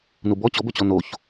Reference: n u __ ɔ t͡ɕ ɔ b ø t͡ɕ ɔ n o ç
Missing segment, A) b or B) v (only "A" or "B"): A